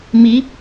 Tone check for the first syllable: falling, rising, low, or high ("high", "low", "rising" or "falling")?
rising